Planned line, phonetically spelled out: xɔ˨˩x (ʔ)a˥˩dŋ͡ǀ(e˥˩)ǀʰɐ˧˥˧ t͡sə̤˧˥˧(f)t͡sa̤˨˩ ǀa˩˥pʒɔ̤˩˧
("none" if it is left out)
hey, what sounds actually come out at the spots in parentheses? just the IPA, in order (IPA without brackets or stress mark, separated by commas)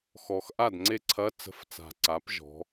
ʔ, e˥˩, f